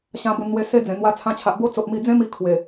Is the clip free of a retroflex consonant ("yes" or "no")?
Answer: yes